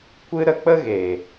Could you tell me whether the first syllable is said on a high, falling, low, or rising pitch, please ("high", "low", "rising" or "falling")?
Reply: high